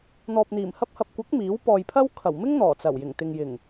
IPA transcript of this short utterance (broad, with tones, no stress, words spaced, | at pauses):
n̪ɔː˨p̚n̪iː˨˩m hɐ˧p̚hɐ˨p̚kʷɐ˨˥k̚ miː˨˥wpɔː˨jpʰɐ˥w kʰɐ˨˩wmɪ˥ŋ n̪ɔː˨˩t͡sɐ˨˩w jɪ˨˩ŋt̪ɪ˨ŋjɪ˨˩ŋ